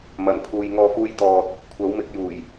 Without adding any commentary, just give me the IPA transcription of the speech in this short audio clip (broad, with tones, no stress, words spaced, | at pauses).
mɐ˨˩n pʰuː˨jŋɔː˧fuː˧j t̪ɔː˨t̚ | kʷʰɐ˨˥wmɪ˨˥k̚juː˨˩j